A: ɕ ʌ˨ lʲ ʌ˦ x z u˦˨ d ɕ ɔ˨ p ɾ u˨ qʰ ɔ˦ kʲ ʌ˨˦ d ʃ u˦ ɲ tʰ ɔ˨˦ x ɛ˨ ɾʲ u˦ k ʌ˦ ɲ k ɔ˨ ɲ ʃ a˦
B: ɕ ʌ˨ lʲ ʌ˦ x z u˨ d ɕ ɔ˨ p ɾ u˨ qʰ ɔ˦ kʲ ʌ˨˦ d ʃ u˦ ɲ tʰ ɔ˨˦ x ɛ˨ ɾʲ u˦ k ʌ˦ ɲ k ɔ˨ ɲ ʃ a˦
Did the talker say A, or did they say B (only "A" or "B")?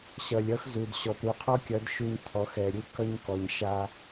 B